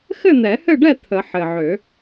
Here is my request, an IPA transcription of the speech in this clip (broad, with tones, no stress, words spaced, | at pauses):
xɘ˥˨n̪ɛ˨˩˦hɘ˥˨ɖɛ˥˨ t̪ʰə˨˩˦ ħɘ˨˩ʕø˨˩˦